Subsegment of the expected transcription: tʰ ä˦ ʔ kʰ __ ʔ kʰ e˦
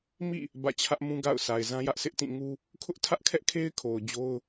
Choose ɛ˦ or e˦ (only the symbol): ɛ˦